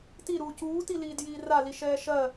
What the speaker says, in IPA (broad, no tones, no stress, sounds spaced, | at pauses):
t i ɾ uː c uː t i l iː d j iː r a l i ʃ ɛː ʃ ɜ